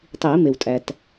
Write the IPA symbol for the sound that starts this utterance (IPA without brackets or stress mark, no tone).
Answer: tˤ